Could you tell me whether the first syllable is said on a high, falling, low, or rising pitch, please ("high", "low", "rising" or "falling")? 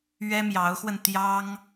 high